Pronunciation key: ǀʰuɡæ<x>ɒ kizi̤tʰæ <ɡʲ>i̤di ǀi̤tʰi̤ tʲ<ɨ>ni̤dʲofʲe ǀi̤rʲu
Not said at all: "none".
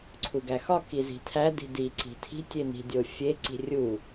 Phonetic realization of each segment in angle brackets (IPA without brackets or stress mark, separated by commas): x, d, e